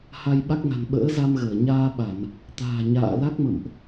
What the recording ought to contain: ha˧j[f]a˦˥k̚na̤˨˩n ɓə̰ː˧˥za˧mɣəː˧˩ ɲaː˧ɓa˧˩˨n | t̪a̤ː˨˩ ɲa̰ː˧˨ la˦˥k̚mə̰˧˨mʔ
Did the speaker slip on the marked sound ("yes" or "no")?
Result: yes